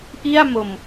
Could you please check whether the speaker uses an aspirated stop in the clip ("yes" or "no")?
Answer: no